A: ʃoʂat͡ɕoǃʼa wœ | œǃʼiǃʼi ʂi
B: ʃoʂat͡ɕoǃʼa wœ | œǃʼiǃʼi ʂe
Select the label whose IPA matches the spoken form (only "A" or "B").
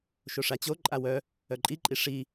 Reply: A